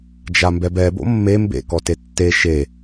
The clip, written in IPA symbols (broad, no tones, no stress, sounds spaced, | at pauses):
d͡ʒ a m b ɛ b ɛ b o̰ mː e m b ḛ k ɔ t e tː e ʃ e